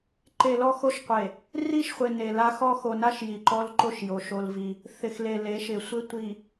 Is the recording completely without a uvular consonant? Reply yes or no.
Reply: no